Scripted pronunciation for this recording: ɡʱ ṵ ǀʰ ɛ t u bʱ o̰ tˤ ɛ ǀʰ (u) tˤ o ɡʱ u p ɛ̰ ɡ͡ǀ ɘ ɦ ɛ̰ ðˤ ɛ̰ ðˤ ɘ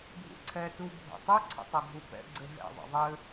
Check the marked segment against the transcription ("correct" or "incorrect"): incorrect